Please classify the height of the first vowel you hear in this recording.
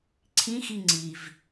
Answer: high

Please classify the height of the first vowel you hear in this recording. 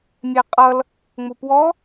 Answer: low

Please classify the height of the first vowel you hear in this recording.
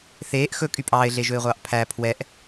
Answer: mid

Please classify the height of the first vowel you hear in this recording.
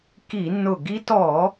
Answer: high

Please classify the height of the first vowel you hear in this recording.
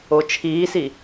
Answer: mid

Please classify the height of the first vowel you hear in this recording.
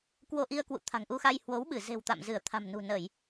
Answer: mid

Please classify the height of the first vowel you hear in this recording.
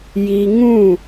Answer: high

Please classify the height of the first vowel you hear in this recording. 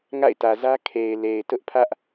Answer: low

